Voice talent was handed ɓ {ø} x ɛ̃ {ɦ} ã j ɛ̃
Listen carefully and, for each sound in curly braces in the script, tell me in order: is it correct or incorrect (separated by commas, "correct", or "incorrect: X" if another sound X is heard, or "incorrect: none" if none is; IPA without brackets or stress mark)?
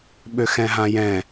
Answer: correct, correct